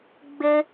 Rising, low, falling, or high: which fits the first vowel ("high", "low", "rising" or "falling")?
high